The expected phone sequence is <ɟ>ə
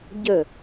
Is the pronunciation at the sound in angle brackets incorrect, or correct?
correct